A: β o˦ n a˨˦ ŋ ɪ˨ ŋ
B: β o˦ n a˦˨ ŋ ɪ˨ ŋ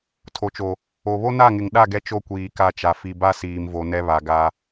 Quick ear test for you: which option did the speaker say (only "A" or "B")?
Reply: B